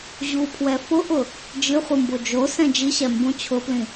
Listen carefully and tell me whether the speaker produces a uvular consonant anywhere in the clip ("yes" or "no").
yes